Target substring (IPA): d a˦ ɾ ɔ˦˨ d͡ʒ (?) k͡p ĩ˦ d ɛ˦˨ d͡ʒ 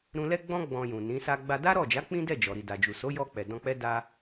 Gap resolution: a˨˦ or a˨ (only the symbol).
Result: a˨˦